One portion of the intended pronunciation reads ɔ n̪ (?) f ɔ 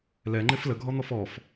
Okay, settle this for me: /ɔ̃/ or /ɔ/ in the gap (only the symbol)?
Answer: ɔ